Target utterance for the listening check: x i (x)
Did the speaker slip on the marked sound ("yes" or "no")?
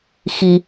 yes